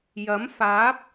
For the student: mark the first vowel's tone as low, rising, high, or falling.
rising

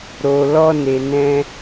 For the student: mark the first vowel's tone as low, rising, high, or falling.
low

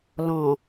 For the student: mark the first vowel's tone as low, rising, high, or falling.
low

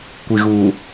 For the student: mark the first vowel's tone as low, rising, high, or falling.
low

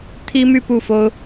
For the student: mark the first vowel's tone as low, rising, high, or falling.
high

